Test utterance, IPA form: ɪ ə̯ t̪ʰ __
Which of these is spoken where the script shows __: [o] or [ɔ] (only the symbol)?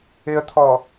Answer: ɔ